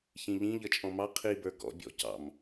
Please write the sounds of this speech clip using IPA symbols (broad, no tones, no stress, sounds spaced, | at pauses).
ç ĩ ʎ ĩ ʎ ʌ t͡ʃʼ ɔ̃ m ɑ qʰ i b ə˞ ɡ ɔ̰ bʲ ɔ̰ c ɑ̰ m